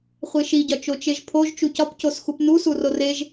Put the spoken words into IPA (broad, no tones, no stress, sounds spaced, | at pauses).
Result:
χʷ e ʃ i ɟ ɒ t͡ʃ o t͡ʃ e ʒ pʰ o ʒ t͡ʃ u c ɒ p c o s x u p n u s u r o r e ʒ